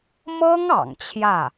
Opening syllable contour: high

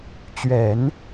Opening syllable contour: low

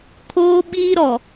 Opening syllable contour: high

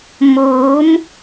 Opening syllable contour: rising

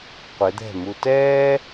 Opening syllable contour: rising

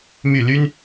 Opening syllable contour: falling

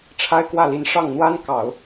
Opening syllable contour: high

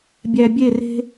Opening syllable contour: low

